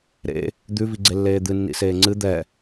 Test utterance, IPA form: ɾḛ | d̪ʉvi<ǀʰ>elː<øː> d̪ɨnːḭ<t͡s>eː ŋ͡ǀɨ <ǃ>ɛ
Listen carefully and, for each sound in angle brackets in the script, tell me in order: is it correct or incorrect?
incorrect, incorrect, incorrect, incorrect

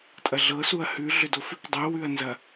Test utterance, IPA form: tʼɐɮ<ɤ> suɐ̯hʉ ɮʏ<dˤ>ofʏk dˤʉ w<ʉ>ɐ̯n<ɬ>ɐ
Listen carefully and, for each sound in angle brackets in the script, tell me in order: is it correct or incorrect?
correct, incorrect, correct, incorrect

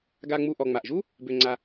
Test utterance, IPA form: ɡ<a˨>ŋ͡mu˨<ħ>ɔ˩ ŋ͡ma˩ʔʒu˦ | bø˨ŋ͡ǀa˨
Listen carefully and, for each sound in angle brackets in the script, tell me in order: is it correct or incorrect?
correct, incorrect

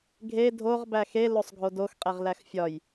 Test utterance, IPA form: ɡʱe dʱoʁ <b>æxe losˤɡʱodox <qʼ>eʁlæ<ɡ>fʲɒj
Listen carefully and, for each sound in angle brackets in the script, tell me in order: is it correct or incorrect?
correct, correct, incorrect

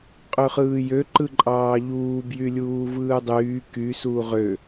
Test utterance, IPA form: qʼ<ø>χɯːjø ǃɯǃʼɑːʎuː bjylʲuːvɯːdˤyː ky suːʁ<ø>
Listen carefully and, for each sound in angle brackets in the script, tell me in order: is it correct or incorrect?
correct, correct

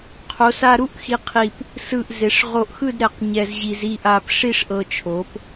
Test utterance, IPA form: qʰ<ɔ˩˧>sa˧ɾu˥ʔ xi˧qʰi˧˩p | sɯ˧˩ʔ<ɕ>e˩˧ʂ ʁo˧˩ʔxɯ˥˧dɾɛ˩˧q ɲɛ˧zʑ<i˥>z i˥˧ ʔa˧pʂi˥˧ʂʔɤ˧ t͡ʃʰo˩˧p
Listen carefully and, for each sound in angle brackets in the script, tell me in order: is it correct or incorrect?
incorrect, incorrect, incorrect

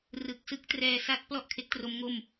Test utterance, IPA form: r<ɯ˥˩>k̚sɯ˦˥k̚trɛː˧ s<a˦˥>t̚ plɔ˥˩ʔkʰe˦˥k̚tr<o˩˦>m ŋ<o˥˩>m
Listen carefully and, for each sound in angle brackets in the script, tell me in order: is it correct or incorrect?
incorrect, correct, incorrect, correct

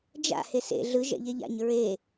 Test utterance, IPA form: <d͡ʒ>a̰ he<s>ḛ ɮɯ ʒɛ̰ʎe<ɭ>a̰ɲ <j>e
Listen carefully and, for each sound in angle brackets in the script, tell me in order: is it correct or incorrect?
correct, correct, incorrect, incorrect

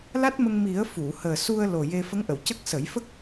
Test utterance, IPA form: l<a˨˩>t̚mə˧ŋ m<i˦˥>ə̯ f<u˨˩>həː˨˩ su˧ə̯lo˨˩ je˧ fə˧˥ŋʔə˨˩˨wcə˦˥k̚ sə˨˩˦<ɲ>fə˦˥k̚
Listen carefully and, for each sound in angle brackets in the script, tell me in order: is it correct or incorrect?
incorrect, incorrect, incorrect, incorrect

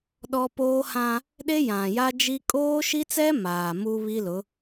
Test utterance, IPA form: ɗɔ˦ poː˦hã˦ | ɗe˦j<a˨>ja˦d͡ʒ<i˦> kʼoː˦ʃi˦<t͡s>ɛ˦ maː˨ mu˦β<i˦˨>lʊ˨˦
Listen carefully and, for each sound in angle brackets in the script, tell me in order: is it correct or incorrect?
incorrect, correct, correct, incorrect

